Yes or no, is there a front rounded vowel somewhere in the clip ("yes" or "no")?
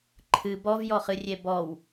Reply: no